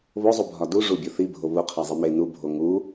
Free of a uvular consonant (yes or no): no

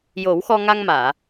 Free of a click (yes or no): yes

